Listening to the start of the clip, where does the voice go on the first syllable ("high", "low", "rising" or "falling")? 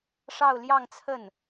falling